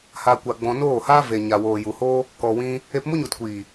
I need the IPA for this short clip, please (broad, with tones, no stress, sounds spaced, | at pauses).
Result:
h a˧ kʷ a˧ ɡ͡b ɔ̃˧ n oː˦˨ h aː˦ v e˨ ɲ a˨ w oː˨ j u˨ h oː˦ | k ɔ˨ w ĩ˧ | e˧ p m u˦ ɲ u˨ t kʷ iː˨